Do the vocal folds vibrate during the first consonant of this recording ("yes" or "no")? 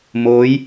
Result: yes